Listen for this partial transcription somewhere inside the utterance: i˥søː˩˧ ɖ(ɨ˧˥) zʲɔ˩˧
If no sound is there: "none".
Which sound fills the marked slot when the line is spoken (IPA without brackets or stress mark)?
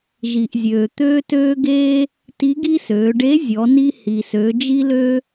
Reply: e˧˥